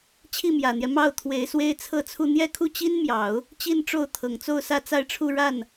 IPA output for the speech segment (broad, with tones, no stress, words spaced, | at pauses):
t͡ɕʰi˥˩mjä˨˩n̪jɛ˦ mɑ˥˩ʊ̯t̪ʰwe˧˥ɪ̯ swe˥ɪ̯t͡sʰɤ˥˧t͡sʰu˥˧ n̪jɛ˥˧kʰu˥˩t͡ɕi˥n mjɑ˨˩˦ʊ̯ | t͡ɕi˥˧nʈ͡ʂo˥˩ʊ̯ t̪ʰɤ˨˩ŋt͡so˥˧ʊ̯ sä˥˧t͡sa˥˧ɪ̯ʈ͡ʂʰu˥˧ ɻa˥˩n